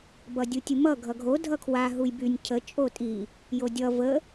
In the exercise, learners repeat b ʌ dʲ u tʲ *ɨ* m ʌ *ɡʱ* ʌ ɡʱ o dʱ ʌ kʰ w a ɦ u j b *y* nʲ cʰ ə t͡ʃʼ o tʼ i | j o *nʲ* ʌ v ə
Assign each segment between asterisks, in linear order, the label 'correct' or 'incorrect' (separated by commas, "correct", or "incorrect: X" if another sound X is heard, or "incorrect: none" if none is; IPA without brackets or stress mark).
correct, correct, correct, incorrect: dʲ